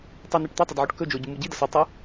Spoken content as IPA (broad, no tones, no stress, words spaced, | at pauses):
tˤeneʈ t̪ɐtˤɐd ʕoʈkɵd͡ʒo ɟumuɟidɐs ɨ tˤɨ